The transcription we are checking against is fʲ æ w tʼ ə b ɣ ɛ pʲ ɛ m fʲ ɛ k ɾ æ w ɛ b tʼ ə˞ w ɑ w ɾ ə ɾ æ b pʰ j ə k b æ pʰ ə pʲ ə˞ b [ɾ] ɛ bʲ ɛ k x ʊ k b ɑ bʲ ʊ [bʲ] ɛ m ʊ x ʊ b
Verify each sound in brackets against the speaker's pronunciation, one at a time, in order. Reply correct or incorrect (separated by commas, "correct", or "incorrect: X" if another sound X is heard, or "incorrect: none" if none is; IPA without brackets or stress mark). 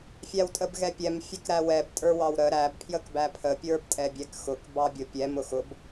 incorrect: tʼ, incorrect: pʲ